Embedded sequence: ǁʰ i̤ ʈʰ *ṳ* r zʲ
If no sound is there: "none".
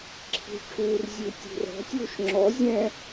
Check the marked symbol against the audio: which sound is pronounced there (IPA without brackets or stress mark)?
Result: u